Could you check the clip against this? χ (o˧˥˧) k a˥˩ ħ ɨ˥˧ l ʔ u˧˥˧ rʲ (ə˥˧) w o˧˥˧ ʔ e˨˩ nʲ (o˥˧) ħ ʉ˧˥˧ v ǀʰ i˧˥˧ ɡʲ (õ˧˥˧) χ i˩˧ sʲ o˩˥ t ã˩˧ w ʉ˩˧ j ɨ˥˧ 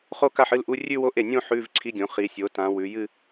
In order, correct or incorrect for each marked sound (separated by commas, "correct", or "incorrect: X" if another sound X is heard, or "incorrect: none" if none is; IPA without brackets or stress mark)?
incorrect: o˥˧, incorrect: ʉ˥˧, incorrect: õ˥˧, incorrect: õ˩˥